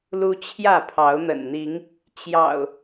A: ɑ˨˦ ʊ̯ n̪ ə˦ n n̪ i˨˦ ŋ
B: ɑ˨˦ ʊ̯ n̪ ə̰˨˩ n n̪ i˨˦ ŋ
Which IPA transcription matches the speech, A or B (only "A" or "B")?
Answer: B